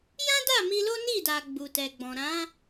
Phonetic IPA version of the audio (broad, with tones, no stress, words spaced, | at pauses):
jã˦da˦˨ mi˧lo˦ni˦˨da˨ ɡ͡bu˨tɛ˨ɡ͡bɔ̃˨ ɾã˨˦